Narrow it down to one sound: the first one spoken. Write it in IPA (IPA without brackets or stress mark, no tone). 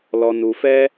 l